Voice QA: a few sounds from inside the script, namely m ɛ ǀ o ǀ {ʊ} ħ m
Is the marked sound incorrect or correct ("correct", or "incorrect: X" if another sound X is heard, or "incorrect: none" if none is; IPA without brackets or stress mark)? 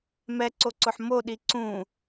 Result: correct